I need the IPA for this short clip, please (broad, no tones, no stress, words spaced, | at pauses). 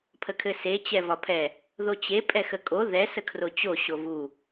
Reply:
pʰəkʰɘse t͡ɕɛvɒpʰɛ | ðot͡ɕe pʼɛxəkʼo ðɛ səkʰrot͡ɕo ɕovu